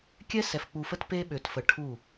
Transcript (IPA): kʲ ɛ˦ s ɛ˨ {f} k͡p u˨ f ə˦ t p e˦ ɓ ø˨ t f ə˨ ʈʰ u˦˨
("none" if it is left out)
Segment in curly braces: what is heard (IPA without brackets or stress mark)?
f